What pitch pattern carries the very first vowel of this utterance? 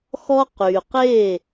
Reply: high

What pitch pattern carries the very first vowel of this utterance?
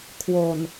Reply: low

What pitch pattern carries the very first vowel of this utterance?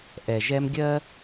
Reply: low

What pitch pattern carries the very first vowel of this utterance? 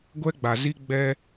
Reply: high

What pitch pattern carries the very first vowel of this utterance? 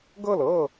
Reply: falling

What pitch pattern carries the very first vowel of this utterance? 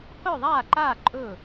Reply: falling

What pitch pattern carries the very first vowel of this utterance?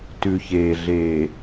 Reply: low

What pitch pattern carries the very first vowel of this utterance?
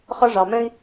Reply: high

